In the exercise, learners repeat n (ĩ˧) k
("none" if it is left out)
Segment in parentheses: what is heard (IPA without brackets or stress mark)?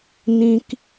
ĩ˧